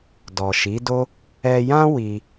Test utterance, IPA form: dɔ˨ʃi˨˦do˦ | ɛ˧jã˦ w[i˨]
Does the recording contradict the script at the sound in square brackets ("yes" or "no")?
yes